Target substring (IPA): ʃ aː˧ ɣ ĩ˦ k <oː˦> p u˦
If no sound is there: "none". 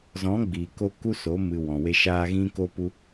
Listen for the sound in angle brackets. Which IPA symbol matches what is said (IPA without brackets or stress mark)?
o˦